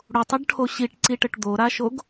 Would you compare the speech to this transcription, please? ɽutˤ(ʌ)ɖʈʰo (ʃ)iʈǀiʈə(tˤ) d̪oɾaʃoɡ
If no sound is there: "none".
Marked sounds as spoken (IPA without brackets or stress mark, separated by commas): ʌ, ɕ, ʈ